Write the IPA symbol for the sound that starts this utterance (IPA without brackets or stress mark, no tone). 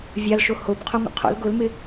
vʲ